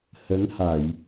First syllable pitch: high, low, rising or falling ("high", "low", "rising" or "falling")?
rising